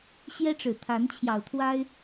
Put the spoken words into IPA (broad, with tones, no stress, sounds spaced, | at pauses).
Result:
ɕ j ɛ˦ ʈ͡ʂ ɻ̩˨˩ t̪ʰ a˨˦ n t͡ɕʰ j ɑ˨˩ ʊ̯ t̪ʰ w a˦ ɪ̯